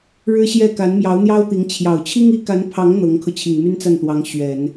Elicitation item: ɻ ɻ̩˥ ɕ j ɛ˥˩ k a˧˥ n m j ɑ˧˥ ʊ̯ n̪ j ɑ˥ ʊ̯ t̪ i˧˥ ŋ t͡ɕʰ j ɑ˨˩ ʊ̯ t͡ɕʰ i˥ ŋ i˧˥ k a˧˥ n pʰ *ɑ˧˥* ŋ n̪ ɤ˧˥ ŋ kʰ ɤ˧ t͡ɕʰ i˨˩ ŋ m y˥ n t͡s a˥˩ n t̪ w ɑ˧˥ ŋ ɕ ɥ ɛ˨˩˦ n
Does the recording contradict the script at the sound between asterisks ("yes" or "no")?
no